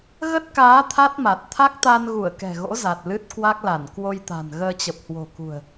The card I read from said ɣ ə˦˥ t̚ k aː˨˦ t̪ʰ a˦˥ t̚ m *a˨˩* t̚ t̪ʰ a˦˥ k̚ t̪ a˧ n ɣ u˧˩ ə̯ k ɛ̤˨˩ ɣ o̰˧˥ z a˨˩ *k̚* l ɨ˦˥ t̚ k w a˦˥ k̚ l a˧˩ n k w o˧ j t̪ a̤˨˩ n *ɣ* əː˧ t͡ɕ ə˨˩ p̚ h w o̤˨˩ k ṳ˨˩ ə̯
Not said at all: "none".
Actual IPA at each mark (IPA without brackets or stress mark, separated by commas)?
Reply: a˨˩, t̚, ɣ